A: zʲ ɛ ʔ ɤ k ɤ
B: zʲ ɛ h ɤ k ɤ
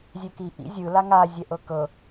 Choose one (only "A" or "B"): A